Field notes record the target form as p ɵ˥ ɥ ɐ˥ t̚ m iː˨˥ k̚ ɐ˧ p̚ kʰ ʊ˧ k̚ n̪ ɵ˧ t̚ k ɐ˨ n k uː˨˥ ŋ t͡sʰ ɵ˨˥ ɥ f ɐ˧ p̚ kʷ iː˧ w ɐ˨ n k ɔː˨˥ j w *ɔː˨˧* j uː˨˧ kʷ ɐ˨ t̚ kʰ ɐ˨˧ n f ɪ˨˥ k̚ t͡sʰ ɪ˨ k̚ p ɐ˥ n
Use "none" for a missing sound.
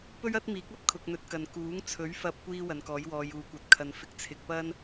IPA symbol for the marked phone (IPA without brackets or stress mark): ɔː˨˧